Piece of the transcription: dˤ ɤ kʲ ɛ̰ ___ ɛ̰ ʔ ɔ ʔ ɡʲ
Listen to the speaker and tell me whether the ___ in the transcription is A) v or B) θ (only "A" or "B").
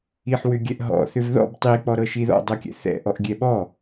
B